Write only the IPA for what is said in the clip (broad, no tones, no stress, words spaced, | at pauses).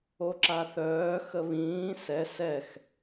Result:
oǁaθœː xəβĩː sɛ sɛx